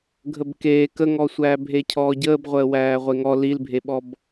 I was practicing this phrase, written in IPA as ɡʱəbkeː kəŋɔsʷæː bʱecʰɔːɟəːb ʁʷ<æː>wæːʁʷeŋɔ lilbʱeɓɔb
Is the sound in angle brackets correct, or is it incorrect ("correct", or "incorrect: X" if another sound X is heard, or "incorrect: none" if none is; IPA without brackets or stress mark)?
incorrect: əː